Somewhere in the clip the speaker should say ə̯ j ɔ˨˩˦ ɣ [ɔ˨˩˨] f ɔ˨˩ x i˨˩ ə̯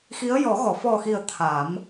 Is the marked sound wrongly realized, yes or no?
no